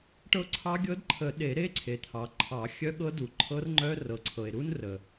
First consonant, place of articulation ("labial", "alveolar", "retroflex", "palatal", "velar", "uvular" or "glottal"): retroflex